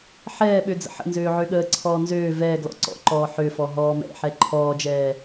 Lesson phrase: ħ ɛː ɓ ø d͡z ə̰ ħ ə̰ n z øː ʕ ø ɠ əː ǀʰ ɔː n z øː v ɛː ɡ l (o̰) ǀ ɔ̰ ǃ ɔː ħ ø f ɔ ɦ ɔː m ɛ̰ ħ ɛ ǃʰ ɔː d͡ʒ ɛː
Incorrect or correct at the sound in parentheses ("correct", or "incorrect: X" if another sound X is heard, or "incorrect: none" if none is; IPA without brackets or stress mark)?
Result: incorrect: ɔ̰